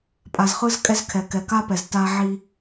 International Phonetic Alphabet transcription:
pʼ a˨ z χ ɯ˦ z kʼ ɛ˦ z kʰ ɛ˨ k ɛ˨ k a˦ p ɛ˨ z t a˦ ʕ i˦

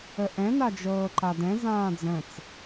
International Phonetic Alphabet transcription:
ə ʔ ɛ̃ n a d͡ʒ ɤː ǃ a d ɛ̃ z ãː d͡z ə̃ t͡s

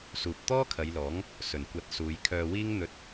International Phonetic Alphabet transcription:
s uː˨ p̚ t̪ ɔː˥ kʰ ɐ˨˧ j l ɔː˨˥ ŋ | s ɵ˨˩ n kʷ ɐ˨˥ t̚ s uː˨˧ j kʰ œː˧ w iː˥ ŋ n̪ ɵ˧ t̚

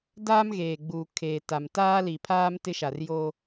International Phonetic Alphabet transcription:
d aː˦ m ɣ eː˨ ɡ͡b uː˨ kʰ eː˨ t a˨ m t aː˦ l i˨ pʰ aː˦ m t ɪ˦ ʃ a˨ r j o˦

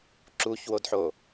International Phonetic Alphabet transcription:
ǁ u ç w o d ħ o

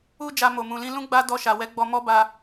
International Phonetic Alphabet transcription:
u˦ d͡ʒ a˧ m o˨ m ũ˨ l ĩ˧ l ũ˦ ɡ͡b a˦ d ɔ˧ ʃ a˨ w ɛ˨˦ ɡ͡b ɔ˧ m ɔ˦ b a˧

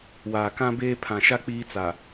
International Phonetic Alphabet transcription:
w aː˨ k ã˦ b eː˦ pʰ ã˨ ʃ a˦ k͡p iː˦ t͡s a˨

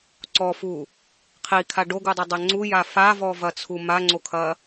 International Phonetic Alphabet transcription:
ǀ ɔ f u | qʰ i kʰ a ɖ o ɡ u dˤ o dˤ ɛ ŋ͡ǀ u j a f a v ɔ v ɐ t͡sʰ u m a ŋ͡ǀ o kʰ ɐ

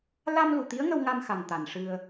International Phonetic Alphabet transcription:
l a˧ m l u˨˩ t̪ i˧˥ ə̯ ŋ ə˧ w ŋ a˧ m x a˨˩ ŋ t̪ a˨˩ n ʂ ɨ˧ ə̯

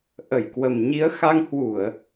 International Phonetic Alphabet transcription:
ʔ ə˧˩ j k w ə˨˩ m ɲ i˨˦ ə̯ x a˧ ŋ h w u˧˩˨ ə̯

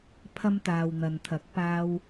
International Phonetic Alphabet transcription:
pʰ ɐ˧ m t̪ aː˨ w n̪ ɐ˨ n t̪ʰ ɐ˨˥ k̚ p aː˥ w

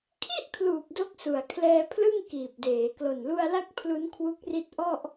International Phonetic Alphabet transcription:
kʰ i˥˩ ʔ kʰ l uː˨˩ p̚ d o˦˥ k̚ s u˨˩ a̯ kʰ l ɛː˧ pʰ l ɯ˥˩ ŋ k iː˨˩ p̚ d eː˩˦ k l o˨˩ n l u˧ a̯ l a˦˥ k̚ pʰ l u˦˥ n kʰ w u˦˥ k̚ r i˦˥ t̚ ʔ ɔ˥˩ ʔ

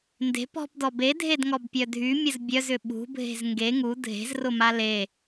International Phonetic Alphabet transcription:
n d e̤ p ɔ̤ p d ɔ b e dʱ e d ŋ ɔ b pʲ œ dʱ y mʲ ə z bʲ œ z ʏ ɓ ṳ bʱ e̤ z ŋ ɡ e ŋ u dʱ e̤ z r ʊ m a l e

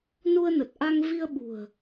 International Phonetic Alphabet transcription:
n u˧ ə̯ n ə˨˩ t̚ ʔ a˧ ŋ v i˧ ə̯ ɓ ṳ˨˩ ə̯

